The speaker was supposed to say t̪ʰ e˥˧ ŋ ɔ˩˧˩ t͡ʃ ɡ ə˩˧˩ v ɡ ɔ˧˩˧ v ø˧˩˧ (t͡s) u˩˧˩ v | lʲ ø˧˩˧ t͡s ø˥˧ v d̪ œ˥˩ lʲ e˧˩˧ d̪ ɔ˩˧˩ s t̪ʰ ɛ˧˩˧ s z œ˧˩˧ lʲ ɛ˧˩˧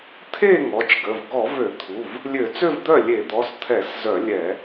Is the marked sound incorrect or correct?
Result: incorrect